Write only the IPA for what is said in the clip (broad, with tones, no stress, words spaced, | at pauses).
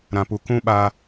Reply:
ɾã˨pu˨ kũ˦ɓaː˧